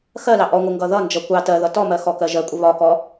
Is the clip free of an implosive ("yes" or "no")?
yes